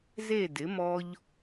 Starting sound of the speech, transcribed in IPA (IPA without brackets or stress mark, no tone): z